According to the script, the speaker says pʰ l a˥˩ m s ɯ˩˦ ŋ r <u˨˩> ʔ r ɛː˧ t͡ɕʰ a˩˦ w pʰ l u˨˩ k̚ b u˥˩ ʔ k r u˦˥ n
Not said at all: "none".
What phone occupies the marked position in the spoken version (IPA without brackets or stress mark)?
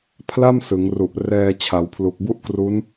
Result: u˨˩